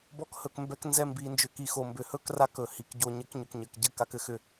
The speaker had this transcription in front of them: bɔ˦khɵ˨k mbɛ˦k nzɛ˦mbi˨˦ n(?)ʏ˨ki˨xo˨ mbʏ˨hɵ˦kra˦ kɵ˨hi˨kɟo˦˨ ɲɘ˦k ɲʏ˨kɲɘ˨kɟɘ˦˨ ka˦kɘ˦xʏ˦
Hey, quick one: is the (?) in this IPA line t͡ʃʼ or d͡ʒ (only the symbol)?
d͡ʒ